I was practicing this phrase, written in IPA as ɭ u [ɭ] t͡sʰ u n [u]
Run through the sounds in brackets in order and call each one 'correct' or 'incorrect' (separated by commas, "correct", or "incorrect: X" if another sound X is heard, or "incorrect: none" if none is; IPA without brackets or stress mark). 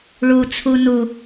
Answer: incorrect: none, correct